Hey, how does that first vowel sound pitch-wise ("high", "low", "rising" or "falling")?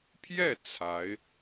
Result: falling